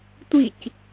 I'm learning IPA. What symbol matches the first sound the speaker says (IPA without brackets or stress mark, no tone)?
tʷ